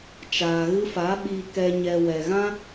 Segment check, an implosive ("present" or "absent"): present